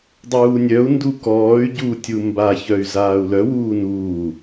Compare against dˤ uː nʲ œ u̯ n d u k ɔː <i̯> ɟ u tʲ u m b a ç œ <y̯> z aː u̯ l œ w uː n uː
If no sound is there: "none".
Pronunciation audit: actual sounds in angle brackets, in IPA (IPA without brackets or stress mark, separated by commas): y̯, y̯